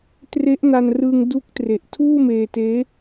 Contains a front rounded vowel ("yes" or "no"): no